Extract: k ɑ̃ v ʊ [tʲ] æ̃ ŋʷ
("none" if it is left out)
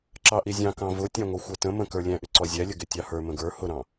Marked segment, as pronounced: tʲ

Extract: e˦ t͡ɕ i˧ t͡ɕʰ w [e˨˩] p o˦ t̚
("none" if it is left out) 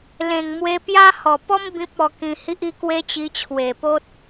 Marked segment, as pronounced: e˨˩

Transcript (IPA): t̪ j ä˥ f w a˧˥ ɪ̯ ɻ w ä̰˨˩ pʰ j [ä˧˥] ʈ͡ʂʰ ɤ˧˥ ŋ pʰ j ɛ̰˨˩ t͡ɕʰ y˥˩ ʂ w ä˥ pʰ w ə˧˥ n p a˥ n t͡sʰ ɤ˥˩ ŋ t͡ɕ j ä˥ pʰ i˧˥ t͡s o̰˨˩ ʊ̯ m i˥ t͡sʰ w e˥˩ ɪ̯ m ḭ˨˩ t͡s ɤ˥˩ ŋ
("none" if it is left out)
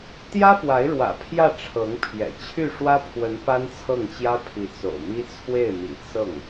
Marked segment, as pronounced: ä˥˩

